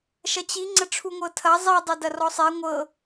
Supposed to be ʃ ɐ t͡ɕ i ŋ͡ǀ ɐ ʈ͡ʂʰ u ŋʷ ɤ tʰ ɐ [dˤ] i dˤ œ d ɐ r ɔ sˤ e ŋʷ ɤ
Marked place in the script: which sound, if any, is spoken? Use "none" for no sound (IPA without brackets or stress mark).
zˤ